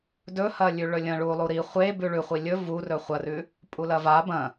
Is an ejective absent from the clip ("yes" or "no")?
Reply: no